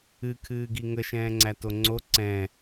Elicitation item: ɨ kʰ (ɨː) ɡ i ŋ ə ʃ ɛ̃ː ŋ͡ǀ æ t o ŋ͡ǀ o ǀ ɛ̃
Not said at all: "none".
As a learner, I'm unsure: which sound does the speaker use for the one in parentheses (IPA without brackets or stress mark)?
ɨː